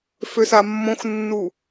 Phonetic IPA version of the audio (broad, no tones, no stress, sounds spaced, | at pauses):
f ø s a mː õ x nː u